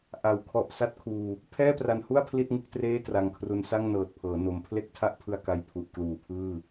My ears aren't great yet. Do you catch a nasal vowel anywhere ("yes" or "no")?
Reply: no